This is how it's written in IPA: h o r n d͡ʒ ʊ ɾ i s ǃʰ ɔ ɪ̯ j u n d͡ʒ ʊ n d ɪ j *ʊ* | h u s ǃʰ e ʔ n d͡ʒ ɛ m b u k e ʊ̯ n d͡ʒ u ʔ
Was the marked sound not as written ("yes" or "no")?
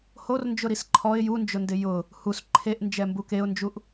no